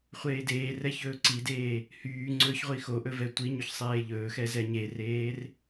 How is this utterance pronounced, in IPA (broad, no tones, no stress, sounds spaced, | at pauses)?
χʷ eː d eː r ɛ ç ɵː ǀ i d eː | h yː ŋ͡ǀ ɵː ç ʁʷ i x o ʔ ɵ v ɛ tʷ i ɲ ɵ ç sˤ eː ʎ ɵː x ɛ z ɛ ɲ e r eː r